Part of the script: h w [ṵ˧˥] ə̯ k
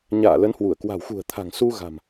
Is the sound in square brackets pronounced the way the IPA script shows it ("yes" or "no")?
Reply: no